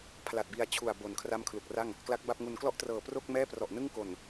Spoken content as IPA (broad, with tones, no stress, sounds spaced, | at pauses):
pʰ l a˨˩ t̚ b i˧ a̯ t͡ɕʰ u˨˩ a̯ b o˨˩ n kʰ r a˥˩ m kʰ l u˨˩ k̚ r a˥˩ ŋ | k l a˦˥ k̚ b a˥˩ p̚ ŋ u˧ n k l ɔ˥˩ ʔ t r ɤː˨˩ p r o˥˩ k̚ m ɛː˥˩ p r ɔ˨˩ ʔ n ɯ˥˩ ŋ k o˨˩ n